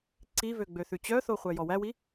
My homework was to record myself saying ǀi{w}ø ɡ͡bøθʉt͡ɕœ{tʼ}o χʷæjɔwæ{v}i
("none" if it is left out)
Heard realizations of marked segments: v, θ, w

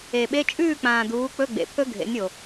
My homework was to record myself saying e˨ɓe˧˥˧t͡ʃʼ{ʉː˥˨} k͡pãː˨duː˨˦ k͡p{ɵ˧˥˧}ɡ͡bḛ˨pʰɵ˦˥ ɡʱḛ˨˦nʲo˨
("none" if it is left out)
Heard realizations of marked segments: ʉː˥˨, ɵ˧˥˧

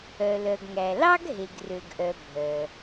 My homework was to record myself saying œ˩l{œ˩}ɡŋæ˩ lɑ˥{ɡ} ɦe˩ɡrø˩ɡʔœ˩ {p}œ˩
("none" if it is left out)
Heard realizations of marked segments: œ˩, ɡ, bʱ

